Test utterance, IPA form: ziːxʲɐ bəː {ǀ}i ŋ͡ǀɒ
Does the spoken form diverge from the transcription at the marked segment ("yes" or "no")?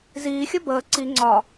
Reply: no